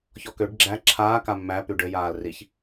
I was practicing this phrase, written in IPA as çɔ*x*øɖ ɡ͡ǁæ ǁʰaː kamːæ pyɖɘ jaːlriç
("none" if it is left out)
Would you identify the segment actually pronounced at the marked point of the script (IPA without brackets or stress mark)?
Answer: k